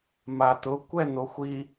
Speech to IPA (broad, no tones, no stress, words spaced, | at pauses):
mat̪ʊ kʷɛn̪oxʷi